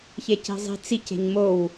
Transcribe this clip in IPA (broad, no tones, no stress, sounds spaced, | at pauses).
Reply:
ç e c i̤ zˤ i̤ t͡s i c e̤ ɲ m o w